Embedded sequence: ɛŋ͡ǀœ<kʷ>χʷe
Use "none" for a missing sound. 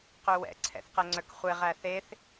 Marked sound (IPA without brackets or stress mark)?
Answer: k